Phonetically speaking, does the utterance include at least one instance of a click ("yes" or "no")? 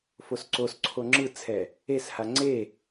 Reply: yes